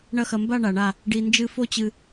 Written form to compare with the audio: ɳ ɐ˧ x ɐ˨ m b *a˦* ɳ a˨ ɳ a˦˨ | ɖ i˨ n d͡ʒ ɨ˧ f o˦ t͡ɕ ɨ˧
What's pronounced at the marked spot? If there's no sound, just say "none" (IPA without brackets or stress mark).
a˦˨